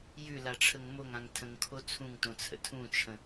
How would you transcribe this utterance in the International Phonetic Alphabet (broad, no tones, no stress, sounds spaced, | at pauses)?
j ʉ l a ʈ͡ʂʰ ə ŋ m o ŋ ã ŋ tʰ ə̃ ŋ kʰ o t͡sʰ ũ ŋ t õ t͡sʰ ə̰ tʰ ũ t͡ʃʰ ə̃